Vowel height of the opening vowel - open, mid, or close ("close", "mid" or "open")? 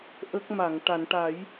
mid